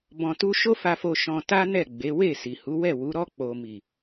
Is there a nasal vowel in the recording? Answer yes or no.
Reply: yes